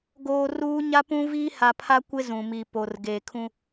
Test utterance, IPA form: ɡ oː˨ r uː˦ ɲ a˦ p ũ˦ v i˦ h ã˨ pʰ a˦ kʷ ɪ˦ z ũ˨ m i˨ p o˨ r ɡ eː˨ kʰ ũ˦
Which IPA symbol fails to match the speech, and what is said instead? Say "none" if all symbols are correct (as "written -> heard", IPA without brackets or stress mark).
ã˨ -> a˨